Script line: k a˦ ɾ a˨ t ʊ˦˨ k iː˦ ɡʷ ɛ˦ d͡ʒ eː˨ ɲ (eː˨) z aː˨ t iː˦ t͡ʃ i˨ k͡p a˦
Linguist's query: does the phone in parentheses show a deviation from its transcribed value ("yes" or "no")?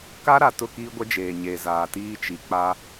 no